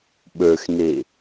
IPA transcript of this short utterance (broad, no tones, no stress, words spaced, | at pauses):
ɓə˞xne